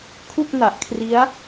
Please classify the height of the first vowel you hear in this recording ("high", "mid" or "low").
high